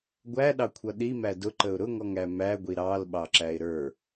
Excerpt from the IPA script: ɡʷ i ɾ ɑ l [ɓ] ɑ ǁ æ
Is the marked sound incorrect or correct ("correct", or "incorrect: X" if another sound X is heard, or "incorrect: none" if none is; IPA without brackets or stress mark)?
correct